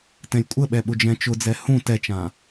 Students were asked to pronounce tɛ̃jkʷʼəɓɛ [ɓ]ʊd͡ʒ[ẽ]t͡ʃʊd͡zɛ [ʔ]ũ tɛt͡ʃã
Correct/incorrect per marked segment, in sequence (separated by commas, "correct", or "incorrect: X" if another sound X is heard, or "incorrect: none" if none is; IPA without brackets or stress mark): correct, incorrect: ɛ̃, incorrect: h